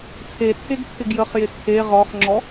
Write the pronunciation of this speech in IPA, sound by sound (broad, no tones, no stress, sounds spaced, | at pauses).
t͡sʰ e t͡sʰ e ɡ t͡sʰ ɪ ɡ j ə χ j ɪ t͡sʰ e ʁ ɔ χ ŋ͡ǁ ɔ